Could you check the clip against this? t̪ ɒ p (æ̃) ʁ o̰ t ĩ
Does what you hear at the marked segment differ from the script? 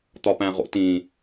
no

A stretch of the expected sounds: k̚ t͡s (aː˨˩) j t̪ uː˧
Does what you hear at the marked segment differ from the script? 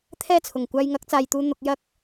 yes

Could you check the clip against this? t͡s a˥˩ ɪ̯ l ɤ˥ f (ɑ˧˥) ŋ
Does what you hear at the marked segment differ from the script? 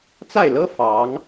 no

